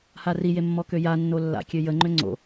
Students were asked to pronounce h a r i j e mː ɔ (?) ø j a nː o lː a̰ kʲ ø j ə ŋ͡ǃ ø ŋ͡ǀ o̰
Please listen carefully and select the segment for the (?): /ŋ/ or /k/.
k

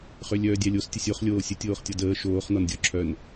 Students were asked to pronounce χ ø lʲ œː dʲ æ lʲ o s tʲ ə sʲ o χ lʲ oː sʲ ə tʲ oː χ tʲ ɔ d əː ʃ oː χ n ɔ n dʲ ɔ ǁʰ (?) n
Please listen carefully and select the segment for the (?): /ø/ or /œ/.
œ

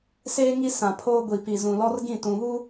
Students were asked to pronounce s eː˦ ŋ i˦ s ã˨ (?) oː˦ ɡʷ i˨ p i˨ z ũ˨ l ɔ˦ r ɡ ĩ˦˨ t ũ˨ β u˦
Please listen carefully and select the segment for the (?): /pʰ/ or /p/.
pʰ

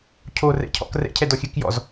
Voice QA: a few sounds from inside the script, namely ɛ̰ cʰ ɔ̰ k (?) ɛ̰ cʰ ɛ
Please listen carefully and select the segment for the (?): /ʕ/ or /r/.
r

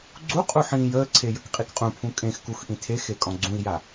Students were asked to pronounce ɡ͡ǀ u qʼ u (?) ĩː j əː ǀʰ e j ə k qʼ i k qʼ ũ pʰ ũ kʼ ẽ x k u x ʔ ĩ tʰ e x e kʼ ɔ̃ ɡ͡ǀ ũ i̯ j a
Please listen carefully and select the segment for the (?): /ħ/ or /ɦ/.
ħ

